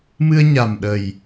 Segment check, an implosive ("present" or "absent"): present